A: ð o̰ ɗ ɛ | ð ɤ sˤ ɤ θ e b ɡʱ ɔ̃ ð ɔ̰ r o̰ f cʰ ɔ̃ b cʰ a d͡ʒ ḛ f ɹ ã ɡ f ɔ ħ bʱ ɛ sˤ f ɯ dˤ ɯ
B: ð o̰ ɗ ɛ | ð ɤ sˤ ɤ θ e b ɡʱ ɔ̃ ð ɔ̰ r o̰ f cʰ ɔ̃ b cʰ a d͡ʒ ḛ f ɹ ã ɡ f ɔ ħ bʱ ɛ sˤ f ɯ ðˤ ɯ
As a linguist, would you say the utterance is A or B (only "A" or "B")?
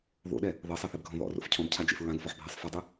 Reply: A